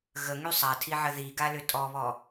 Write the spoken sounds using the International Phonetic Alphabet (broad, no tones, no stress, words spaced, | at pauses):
ɣəŋy sˤatʰiʕə ðiɡalʏ tʼɔβɔ